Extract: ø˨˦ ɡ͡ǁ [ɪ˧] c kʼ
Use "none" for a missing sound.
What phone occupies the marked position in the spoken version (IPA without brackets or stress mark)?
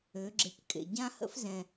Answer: ɪ˧